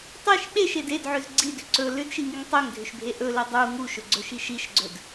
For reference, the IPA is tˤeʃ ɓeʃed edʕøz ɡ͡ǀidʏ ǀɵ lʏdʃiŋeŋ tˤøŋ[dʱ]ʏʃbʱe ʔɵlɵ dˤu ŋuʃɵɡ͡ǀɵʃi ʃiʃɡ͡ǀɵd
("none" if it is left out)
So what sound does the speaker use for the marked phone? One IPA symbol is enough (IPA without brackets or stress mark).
dʱ